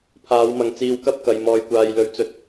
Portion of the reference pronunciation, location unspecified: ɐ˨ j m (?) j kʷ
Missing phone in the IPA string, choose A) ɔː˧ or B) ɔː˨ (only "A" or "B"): B